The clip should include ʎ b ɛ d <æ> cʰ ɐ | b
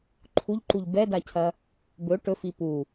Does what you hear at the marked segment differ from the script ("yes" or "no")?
yes